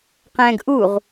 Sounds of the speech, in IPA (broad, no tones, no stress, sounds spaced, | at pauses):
q ɛ̃ ɡ ʔ u ʁ